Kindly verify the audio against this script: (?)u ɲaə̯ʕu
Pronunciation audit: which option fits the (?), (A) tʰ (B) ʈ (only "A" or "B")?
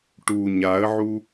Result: B